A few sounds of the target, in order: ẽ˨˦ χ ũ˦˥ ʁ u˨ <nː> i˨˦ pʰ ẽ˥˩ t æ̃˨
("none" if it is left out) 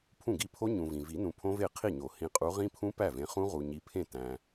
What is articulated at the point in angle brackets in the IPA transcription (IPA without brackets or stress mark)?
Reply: ɲ